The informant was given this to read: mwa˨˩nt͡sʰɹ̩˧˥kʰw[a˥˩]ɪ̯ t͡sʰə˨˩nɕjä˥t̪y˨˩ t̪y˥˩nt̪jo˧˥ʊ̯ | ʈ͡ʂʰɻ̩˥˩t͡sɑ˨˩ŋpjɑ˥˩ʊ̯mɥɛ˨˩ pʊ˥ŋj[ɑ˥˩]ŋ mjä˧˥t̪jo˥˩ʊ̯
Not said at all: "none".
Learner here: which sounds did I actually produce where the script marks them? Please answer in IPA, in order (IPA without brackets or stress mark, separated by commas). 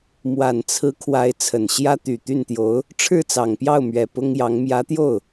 a˧˥, ɑ˧˥